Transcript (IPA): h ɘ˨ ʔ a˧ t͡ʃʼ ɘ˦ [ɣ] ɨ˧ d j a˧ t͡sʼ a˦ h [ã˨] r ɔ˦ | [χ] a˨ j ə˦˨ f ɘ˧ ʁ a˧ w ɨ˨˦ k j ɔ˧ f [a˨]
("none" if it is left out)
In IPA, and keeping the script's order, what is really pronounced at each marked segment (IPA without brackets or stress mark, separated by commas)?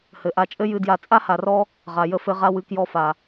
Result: j, a˨, ʁ, a˨